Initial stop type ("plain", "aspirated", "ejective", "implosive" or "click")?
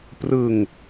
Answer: plain